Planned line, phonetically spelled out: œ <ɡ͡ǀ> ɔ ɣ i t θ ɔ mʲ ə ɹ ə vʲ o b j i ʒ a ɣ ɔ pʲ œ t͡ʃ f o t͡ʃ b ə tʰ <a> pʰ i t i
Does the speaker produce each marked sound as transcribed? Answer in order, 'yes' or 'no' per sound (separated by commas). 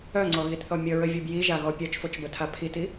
no, yes